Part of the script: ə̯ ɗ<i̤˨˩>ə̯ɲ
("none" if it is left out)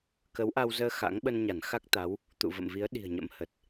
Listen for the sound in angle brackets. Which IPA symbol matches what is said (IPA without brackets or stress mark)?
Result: i̤˨˩